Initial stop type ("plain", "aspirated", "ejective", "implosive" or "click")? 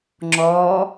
click